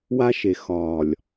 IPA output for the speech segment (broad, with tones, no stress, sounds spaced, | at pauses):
w a˦ ʃ e˨ x ɒː˨ lʲ